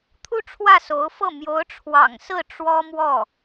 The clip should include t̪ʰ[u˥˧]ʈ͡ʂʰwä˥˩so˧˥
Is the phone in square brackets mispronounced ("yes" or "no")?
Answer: no